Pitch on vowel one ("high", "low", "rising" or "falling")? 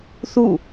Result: falling